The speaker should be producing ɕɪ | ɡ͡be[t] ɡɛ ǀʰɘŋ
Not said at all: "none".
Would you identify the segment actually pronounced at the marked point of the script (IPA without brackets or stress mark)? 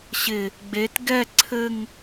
t